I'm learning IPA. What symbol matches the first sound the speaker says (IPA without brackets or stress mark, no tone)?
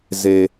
z